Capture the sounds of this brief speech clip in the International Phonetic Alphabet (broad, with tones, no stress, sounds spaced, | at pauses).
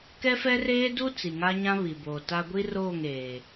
k ɛ˦ f ɛ˦ r eː˦ d u˦ t͡s i˨ ŋ a˦ ɲ ã˦ β i˨ b oː˨ t a˦ ɡʷ i˦ r oː˦˨ ŋ eː˨